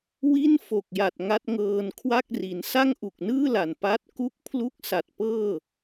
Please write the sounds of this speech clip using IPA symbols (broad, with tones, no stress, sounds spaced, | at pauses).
w i˥˩ n f o˨˩ k̚ j a˨˩ t̚ ŋ a˦˥ t̚ ŋ ɤː˧ n kʰ w a˥˩ k̚ r i˩˦ n s a˥˩ ŋ ʔ u˨˩ k̚ n ɯː˥˩ l a˨˩ n p a˦˥ t̚ k u˦˥ k̚ pʰ l u˦˥ k̚ s a˨˩ t̚ p ɤː˥˩